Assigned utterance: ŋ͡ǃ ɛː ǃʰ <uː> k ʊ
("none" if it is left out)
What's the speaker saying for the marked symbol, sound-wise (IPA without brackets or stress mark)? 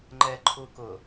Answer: uː